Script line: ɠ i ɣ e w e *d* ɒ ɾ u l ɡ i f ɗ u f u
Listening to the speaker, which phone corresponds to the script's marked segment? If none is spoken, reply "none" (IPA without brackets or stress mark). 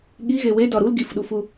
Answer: d